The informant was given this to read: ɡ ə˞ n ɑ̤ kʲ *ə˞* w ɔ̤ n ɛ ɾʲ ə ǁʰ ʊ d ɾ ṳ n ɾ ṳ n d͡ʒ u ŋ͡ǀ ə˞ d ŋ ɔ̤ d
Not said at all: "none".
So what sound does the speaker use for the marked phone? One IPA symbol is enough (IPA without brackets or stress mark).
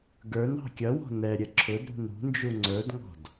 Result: ʌ